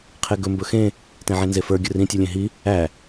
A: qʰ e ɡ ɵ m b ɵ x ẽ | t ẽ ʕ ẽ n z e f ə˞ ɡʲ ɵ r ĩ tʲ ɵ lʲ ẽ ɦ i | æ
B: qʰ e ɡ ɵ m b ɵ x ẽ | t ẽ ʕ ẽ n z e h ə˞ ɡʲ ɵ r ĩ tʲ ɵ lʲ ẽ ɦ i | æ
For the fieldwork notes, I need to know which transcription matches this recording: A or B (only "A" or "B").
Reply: A